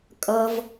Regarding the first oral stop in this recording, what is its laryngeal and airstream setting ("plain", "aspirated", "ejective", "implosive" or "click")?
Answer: ejective